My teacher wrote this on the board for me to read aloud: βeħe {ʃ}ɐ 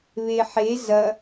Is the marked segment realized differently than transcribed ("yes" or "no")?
yes